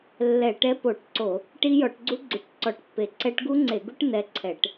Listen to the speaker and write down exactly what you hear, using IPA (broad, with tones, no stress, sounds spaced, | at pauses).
lː ɛ˧˩˧ ʈ ɛ˦˥ p o˧˩˧ ʈ ǀ o˧˩˧ | ʈ i˦˥ j ɔ˧˩˧ ʈ ɡ͡ǀ u˦˥ ɡ͡ǀ u˧˩˧ ʈ ǀ ɔ˧˩˧ ʈ pː e˧˩˧ ǀ ɛ˦˥ ʈ ɡ u˦˥ ŋ͡ǀ e˧˩˧ ɡ u˦˥ ʈ n ɛ˦˥ ǀʰ ɛ˧˩˧ ʈ